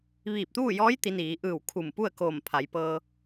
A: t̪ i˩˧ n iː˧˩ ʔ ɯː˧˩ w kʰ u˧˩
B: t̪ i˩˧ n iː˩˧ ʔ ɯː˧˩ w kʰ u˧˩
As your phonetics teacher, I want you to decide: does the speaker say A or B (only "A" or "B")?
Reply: B